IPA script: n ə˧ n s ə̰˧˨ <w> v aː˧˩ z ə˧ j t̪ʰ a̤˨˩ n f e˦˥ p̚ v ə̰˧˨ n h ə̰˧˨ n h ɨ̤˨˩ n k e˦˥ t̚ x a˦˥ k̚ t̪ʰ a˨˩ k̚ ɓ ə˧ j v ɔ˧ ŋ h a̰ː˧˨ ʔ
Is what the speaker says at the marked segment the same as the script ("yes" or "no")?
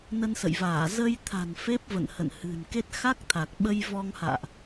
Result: no